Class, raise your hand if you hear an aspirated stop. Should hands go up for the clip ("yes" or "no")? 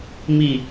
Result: no